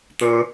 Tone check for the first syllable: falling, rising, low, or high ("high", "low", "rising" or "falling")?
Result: high